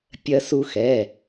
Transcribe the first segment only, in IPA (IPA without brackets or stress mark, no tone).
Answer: pʲ